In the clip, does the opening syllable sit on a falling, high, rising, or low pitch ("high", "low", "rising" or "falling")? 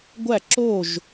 falling